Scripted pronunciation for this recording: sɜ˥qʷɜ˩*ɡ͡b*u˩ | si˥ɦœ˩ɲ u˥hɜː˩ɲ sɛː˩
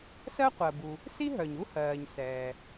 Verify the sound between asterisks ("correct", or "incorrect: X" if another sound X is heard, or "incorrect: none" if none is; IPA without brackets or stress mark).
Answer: incorrect: b